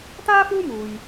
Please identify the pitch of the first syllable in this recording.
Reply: high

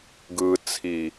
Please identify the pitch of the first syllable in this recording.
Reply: low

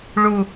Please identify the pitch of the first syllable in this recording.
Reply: high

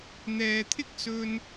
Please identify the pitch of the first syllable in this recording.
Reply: low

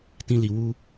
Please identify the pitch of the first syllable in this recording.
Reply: high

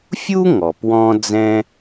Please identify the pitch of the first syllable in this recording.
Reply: high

